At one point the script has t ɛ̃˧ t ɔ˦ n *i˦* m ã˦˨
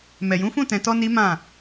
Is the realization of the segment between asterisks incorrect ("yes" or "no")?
no